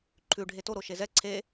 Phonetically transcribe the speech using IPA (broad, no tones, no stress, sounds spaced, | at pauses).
ǃʰ ʉ ɖʱ e t o ɾ o ʃ e z ɛ ǀʰ e